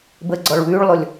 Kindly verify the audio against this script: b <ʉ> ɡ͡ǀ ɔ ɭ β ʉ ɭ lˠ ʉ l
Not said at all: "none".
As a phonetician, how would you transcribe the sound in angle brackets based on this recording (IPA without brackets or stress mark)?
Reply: ə